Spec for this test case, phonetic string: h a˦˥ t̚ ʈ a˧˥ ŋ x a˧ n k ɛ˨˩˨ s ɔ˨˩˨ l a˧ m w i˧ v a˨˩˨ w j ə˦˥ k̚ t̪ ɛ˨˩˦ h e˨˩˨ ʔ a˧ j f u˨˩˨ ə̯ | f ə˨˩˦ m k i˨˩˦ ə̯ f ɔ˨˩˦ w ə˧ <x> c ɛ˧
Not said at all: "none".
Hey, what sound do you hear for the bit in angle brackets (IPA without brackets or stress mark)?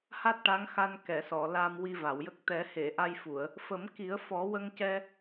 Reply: ŋ